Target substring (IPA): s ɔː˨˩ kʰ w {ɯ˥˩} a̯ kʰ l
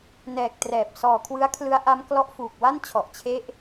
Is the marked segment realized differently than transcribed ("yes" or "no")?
yes